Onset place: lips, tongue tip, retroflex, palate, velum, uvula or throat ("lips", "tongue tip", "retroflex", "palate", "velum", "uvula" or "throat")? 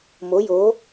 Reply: lips